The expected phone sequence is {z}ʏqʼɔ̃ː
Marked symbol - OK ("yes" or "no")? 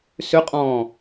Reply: no